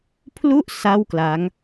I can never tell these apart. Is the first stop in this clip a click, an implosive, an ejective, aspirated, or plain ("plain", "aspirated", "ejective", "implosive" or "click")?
aspirated